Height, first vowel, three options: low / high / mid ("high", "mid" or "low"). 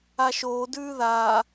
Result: low